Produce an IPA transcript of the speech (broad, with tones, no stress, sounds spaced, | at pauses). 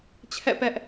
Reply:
t͡ɕʰ ɛ̰˦˨ p ɛ˦ ʔ